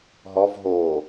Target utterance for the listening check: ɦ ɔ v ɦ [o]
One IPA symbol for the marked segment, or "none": o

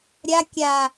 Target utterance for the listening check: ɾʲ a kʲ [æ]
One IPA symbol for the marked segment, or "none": a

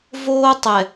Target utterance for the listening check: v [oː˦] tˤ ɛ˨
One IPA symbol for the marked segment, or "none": oː˦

